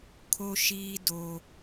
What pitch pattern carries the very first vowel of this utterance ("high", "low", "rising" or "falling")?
high